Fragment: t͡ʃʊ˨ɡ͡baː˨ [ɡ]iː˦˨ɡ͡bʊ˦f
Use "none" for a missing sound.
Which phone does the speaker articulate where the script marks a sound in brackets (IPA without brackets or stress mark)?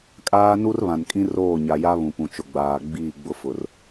ɡ͡b